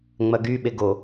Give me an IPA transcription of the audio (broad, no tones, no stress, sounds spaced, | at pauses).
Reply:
ŋ͡m ɐ ɡ y ɓ e ɡ o